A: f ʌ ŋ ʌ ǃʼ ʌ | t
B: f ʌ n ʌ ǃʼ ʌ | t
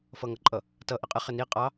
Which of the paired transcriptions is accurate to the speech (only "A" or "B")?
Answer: A